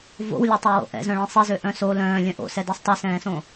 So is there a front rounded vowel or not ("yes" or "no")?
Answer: yes